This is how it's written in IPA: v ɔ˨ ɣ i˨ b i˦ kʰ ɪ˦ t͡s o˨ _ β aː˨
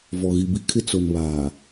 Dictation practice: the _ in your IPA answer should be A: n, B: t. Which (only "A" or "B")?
A